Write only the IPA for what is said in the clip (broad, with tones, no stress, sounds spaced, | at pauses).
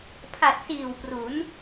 pʰ a˨˩ t̚ s iː˨˩ w p r u˩˦ n